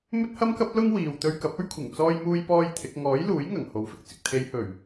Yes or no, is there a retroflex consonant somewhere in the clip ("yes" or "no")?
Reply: no